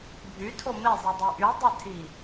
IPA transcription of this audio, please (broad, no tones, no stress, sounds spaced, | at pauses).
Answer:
bʱ y tʰ o m e zˤ i dˤ i ʔ y dˤ e tʰ i